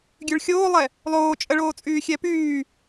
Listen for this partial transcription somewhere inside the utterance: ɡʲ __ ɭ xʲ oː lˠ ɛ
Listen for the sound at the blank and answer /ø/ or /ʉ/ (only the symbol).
ʉ